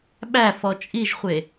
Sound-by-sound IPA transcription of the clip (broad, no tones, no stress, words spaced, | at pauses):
ɓæfɔ t͡ʃʼiʒχʷe